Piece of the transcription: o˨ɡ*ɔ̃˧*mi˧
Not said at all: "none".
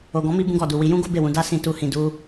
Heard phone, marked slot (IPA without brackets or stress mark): ɔ̃˨˦